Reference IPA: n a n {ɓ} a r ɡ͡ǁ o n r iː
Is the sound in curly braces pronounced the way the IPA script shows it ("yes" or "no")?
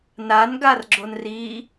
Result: no